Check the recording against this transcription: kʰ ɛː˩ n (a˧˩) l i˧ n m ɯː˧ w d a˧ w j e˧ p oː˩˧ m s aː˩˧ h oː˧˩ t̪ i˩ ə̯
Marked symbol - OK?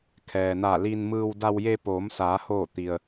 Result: yes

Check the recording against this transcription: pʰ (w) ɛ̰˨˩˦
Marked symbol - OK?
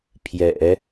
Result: no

